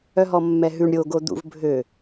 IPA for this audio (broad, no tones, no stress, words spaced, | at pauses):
œɦɔmːɛɦʉɳ ɾʲo ɡod̪ṵv bʱø